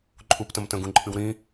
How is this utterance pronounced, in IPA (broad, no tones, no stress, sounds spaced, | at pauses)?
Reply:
ǃʼ u p t ə̃ m t ə̃ ɡ ũ ǃʼ ɨ w ɾ ĩ